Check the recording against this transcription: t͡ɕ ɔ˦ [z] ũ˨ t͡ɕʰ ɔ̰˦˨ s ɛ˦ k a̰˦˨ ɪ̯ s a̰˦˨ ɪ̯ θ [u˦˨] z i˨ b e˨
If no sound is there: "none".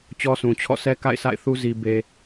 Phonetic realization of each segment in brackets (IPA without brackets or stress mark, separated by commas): s, u˦